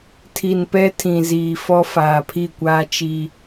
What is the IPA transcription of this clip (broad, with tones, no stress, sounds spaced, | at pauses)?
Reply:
tʰ i˨ n p ɛ˦ tʰ ĩ˨ z iː˨ f ɔ˦ f aː˨ pʰ i˦˨ kʷ aː˦ t͡ʃ i˦